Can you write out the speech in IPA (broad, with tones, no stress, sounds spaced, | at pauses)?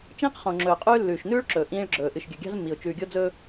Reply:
t͡ʃ ĩː˦ q χ õ˨ ŋ͡ǁ ɵː˨ qʼ ʉː˦ lː ʉː˨ ʃ n ʉː˦ ɭ ǁ ɵː˨ ʔ ĩː˦ ɭ ɡ͡ǁ ɵː˨ ʔ ɨ˨ ʃ ɡʲ ɵ˨ ɡʲ a̤˦ z mː i˨ ʊ̯ t͡ʃ ʉː˨ ɡʲ o˦ d͡z ɵː˦